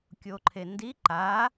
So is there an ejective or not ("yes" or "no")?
no